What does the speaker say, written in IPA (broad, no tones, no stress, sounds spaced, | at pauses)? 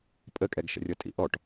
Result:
pʼ ə kʼ ɛ ɡ ʃ ə̰ rʲ ɤ tʼ ḭ ʔ ɔ ʈ